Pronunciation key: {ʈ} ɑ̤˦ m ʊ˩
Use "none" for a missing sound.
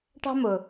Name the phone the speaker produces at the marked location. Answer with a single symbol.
ʈ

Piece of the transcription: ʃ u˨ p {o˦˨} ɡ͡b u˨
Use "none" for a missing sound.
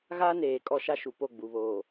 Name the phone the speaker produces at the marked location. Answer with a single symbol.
o˦˨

